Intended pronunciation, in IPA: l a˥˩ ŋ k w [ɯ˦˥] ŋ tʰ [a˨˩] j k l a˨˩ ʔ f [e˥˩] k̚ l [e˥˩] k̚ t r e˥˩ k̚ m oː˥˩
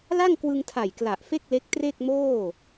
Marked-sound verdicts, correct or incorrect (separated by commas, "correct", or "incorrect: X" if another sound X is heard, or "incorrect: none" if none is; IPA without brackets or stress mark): incorrect: ɯ˧, correct, correct, incorrect: e˦˥